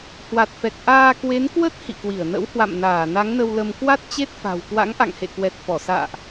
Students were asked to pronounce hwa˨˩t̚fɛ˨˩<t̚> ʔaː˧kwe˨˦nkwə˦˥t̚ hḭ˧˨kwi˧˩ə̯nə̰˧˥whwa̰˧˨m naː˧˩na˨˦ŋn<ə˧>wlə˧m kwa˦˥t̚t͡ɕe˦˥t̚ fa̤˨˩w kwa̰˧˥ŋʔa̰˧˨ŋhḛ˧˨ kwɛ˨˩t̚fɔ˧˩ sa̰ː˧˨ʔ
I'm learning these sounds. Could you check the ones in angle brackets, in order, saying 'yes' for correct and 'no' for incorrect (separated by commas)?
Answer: no, yes